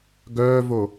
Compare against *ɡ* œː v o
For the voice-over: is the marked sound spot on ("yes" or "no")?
yes